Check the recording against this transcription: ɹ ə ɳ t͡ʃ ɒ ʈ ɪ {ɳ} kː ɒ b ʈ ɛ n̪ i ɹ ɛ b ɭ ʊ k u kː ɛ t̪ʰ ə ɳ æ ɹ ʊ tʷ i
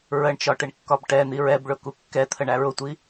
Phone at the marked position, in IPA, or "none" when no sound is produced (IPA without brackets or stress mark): ɳ